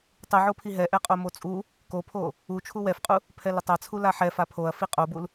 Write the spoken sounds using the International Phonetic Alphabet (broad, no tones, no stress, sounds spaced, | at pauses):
tˤ u ʕ o pʰ i ɦ ɛ ʔ ɛ qʼ o m o t͡sʼ u | k o pʰ o | u t͡ʃʰ u w ɛ f qʼ u | pʰ ɛ l ɪ tˤ a t͡sʰ u l a ħ ɛ f a pʰ o ɐ̯ f i qʼ o b u l